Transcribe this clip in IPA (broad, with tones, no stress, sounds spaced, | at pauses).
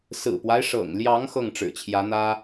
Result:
s ɹ̩˨˩ p w a˦ ɪ̯ ʂ ɤ̰˨˩ ŋ l j ɑ˧˥ ŋ x ɤ˥˩ ŋ ʈ͡ʂ ɻ̩˨˩ t͡ɕʰ j ä˧˥ n̪ ä˥